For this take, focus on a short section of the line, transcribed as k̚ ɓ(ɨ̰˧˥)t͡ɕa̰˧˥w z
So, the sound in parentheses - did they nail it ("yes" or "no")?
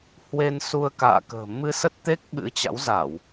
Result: yes